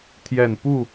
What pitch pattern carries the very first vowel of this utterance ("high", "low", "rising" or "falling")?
falling